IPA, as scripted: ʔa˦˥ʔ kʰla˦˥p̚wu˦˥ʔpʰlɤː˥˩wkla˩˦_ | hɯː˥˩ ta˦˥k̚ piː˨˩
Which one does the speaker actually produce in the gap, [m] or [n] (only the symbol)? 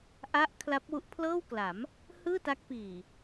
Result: m